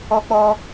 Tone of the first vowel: high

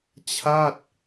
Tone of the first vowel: falling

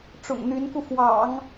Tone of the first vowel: low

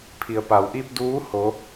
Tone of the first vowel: low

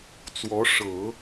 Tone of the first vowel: rising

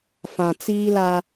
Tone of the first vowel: low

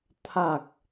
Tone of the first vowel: low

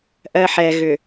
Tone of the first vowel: low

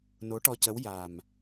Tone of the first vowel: rising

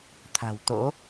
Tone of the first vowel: low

